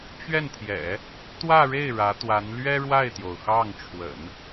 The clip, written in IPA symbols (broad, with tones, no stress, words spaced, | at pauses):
t͡ɕɥɛ˥˩nt̪ʰjɛ̰˨˩˦ | t̪wä˥˧ɻe˥˩ɪ̯ ɻä˧˥t̪wa˧˥n lɥɛ˥ɻwa˥˩ɪ̯t̪jo˩ʊ̯ xɑ˥˩ŋʈ͡ʂʰwə̰˨˩˦n